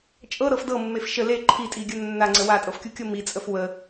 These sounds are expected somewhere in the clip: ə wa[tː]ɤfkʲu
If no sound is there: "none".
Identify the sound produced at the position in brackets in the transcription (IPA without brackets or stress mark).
tʼ